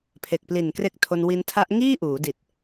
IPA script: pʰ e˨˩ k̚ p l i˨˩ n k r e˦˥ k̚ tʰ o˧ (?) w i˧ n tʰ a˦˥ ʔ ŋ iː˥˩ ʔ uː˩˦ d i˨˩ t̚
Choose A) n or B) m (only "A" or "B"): A